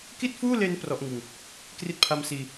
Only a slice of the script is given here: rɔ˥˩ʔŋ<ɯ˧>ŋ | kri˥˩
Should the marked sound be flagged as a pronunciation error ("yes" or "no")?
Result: no